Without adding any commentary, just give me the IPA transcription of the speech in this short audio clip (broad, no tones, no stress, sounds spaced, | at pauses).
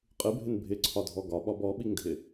qʼ ɨ bʱ ɪ n bʱ ɪ ǀʰ ɒ dʱ ɔ ɡ ɒ ɓ ɒ b ɔ ɓ i ŋ dʱ ɪ